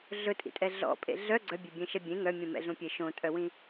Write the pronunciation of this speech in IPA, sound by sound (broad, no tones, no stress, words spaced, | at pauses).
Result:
ɮɵtʼḭtʼɛ ɮɔ̰pʼḛ ɮœ ɡ͡ǀœbʲebʲẽʃɛ bʲẽ ŋœmʲũ mɛ̰ɮũpʲe ʃõtʼœwĩ